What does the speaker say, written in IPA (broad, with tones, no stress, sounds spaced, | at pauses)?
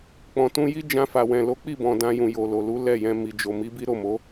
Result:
k͡p ɔ̃˨ t ũ˧ j i˦ d͡ʒ ã˧ f a˨ w ɛ̃˨ l o˨˦ k͡p i˦˨ b ɔ̃˨ d ã˧ j ũ˨ j o˨ l o˨ l u˨˦ l ɛ˦˨ j ɛ̃˧ m i˨ d͡ʒ o˨ m i˨˦ b i˦ ɾ o˦˨ m o˨˦